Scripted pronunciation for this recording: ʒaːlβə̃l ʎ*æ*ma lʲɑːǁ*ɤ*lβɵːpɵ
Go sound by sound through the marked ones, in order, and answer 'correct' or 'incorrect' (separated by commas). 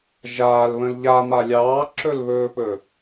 incorrect, incorrect